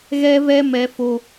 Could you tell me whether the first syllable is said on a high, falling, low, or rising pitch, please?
high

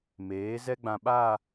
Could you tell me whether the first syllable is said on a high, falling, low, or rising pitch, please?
rising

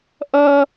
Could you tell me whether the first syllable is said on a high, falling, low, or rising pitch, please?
high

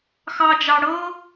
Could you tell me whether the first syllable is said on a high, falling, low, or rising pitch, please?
high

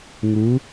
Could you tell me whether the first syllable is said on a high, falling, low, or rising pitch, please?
rising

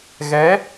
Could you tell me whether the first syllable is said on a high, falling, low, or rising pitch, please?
rising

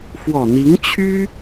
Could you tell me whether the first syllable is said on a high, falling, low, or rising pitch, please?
low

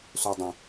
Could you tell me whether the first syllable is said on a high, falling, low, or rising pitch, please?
low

